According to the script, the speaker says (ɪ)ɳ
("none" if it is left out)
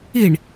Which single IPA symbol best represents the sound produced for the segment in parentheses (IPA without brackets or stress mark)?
i